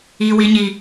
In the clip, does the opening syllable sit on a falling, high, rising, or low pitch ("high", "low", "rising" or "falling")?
low